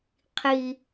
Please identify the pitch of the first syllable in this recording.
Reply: high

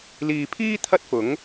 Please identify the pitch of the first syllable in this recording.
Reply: low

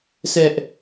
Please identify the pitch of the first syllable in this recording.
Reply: high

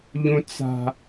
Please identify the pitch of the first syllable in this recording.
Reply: high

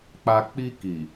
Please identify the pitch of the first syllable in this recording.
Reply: low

